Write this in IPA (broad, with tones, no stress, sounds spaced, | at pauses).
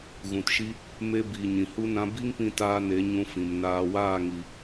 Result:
ɣ ũ˨ t ʃ i˧ | m e˧ b iː˨ ɲ ĩ˨ h u˦ n ã˧ b i˦ ŋ p ĩ˦ t aː˦ n e˨˦ ɲ ũ˧ f ĩ˨ m n aː˧ w aː˦˨ ŋ i˨